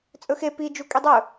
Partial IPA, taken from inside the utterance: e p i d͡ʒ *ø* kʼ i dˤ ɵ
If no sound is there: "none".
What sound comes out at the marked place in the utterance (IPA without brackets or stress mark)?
u